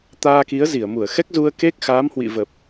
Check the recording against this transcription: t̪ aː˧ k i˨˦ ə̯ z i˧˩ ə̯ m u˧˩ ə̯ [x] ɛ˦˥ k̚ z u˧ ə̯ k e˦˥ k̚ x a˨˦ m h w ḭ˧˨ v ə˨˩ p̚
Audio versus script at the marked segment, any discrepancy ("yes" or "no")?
no